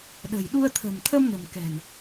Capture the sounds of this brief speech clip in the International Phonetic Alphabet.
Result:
ɗ ə̤˨˩ j ɗ u˧ ə̯ t̪ʰ ə̤˨˩ m t̪ʰ ə˧ m n ə̤˨˩ m k ɛ̤˨˩ n

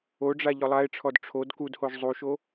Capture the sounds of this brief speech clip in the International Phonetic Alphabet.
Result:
o ɖ͡ʐ a ʎ ɔ lˠ a e̯ ʈ͡ʂʰ ɔ d ʈ͡ʂʰ o d k u d h o ʒ zˤ u ʃ o

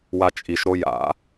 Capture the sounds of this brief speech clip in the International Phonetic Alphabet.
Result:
w a t͡ʃʼ i ʃ ɾ o j a̰

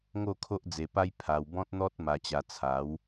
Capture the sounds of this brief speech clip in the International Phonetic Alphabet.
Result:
ŋ o˥˧ kʰ o˦ ʔ d͡z e˧ p a˦ j pʰ a˧ w b ɔ̃˦ t̚ n̪ ɔ˦ t̚ m a˧ t͡ɕ a˧ t͡sʰ a˨˦ w

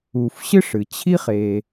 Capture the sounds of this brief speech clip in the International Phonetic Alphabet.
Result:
u˩ f ɕ ɨ˥ ʂ ɨ˩ t͡ɕʰ i˥ χ e˩

